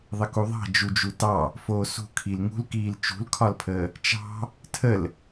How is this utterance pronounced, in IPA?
ðˤəkuðˤɑ̤ d͡ʒud͡ʒutɑ | foːsṳ kʰilŋṳlkiːl t͡ʃṳlkʰɒlpʰəː | t͡ʃɑ̤ | tʰəl

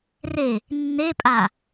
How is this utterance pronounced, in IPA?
re | nːepʼa

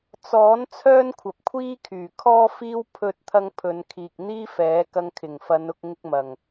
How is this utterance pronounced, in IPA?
t͡sɔː˨˥n t͡sʰœː˥nkʷʰɐ˨p̚kʷʰiː˥kʰyː˨˩ kʰɔː˥fiː˥w pʰɵ˧t̚t̪ʰɐ˧ŋ pʰɵ˨˧n kʰiː˨k̚n̪iː˥fɛː˨˥ kɐ˧ŋkʰɪ˨˩ŋfɐ˨˧nʊ˧k̚ ŋɪ˧k̚mɐ˨˩ŋ

